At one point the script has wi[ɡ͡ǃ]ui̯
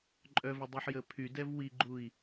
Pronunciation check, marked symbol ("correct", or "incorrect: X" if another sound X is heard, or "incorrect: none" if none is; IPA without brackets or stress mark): correct